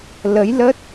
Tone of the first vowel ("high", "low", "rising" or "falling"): rising